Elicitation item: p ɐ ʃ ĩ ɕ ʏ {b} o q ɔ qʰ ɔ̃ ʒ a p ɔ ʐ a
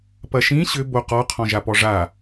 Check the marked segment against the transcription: correct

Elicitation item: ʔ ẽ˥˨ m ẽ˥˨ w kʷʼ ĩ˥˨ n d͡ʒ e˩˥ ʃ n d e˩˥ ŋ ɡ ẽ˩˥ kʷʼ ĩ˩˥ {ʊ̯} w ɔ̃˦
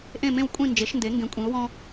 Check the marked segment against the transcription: correct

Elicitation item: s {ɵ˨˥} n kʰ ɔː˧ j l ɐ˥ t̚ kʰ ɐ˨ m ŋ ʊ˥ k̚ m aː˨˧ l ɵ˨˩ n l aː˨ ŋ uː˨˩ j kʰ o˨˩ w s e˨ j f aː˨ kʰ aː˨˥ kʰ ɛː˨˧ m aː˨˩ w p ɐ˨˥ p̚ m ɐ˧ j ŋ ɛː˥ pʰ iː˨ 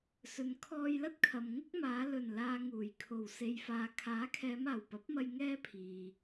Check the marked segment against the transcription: incorrect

